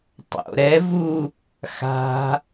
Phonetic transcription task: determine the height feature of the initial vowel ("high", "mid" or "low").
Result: mid